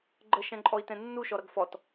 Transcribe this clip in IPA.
ɡ͡ǃəʃɛ̃ǃʼɔi̯tɛ̃ nːuʃɔɾʌɡ fɔt

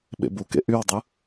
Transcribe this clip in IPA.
ɓḛbukḛ ʔywdˤɯ

